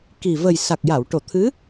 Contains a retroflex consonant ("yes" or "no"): yes